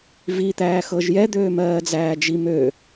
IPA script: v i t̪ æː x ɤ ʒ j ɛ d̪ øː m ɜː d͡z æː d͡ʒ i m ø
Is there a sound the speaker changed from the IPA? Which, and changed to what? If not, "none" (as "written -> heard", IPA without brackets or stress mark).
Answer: none